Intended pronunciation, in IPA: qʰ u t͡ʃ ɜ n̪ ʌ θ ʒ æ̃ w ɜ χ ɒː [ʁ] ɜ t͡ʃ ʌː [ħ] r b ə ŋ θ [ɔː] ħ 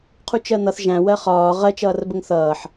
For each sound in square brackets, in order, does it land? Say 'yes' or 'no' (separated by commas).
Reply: yes, no, no